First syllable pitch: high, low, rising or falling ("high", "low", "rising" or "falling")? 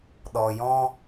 low